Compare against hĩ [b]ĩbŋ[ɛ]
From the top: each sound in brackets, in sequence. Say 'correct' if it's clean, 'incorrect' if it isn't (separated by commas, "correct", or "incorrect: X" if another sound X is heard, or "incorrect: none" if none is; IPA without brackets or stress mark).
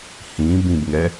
correct, correct